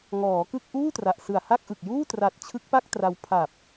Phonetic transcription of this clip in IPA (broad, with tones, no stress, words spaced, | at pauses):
ŋɔː˩˦kɯ˥˩k̚ ʔuː˥˩tra˨˩ʔsɯ˨˩a̯ ha˥˩k̚ʔɯ˨˩k̚juː˥˩ tra˨˩t̚ t͡ɕʰɯ˦˥k̚pa˥˩k̚ tra˧w pʰa˨˩p̚